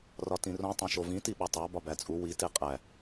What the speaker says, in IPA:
r ɒ t ĩ r õ tˤ õ ʃ o v ĩ t i ɓ ɒ tˤ æ b ɒ b æ t͡sʼ u w i t e qʼ æ

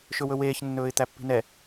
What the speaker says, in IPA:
ʃ ɵ w ɵ w eː ç nː ɵː ɪ̯ t̪ æ pː i̤ n ɛ

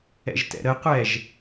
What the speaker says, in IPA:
ɛ̰ ʒ t ɛ̰ ɾ ə qʷ ɛ ʒ

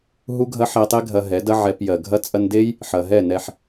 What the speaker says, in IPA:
ɦ u˦ ɡʱ ɐ˦ ħ ɛ˧ tˤ e˦ ɡʱ ɐ˧ ɦ ɛ˨˦ d ɐ˦ ʕ ɛ˧ p j ɜ˨ ɡʱ ɐ˧ t͡sʼ ɐ˧ n d e˦ j | ħ ɐ˨ ɦ ɛ˦˨ n ɛ˧ ħ

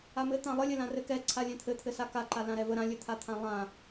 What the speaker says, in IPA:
a m ɘ t̪ ã lˠ ə lʲ ɘ l ã r ɘ k ɛ ǀʰ a lʲ ɛ̃ t̪ʰ ɘ t̪ʰ ɘ s a k a ǃ a l ã ɾ ɛ v ə ɾ ã lʲ ɘ t̪ʰ a t̪ʰ ã lˠ ã

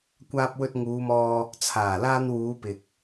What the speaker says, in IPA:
kʷ aː˧ p̚ w ɵ˧ t̚ ŋ uː˨˧ m ɔː˧ | t͡sʰ aː˨˩ l aː˧ n w uː˨˧ p ɪ˨ k̚

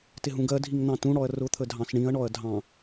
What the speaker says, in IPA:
t ɪ ɦ ũ ɡ ɜ dʱ i ŋ n̪ ɑ̃ t ũ ɽ ɔ ɐ̯ r ʊ t̪ʰ ə dʱ ɑ̃ s ɳ ĩ ɐ̯ ɳ ɔ ɐ̯ dʱ ɑ̃

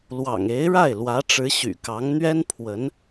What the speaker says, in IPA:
l w ɑ̰˨˩ ŋ e˧˥ ɪ̯ ɻ a˥˩ ɪ̯ l w ä˧˥ ʈ͡ʂ ɻ̩˧˥ ɕ y̰˨˩ k ɑ˧˥ ŋ n̪ ɥ ɛ˥ n pʰ w ə˧˥ n

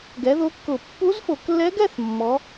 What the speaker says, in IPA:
ɡ ɛ˩˥ ð o˧˥ kː ʊ˧˩˧ pː u˧˥ z f o˧˩˧ k lː ɛ˧˥ ɡ ɛ˥˧ θ mː ɔ˩˥

